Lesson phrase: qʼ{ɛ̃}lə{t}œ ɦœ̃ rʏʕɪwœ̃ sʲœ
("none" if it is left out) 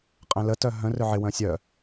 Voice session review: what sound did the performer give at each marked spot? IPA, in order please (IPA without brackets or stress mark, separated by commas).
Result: ɛ̃, t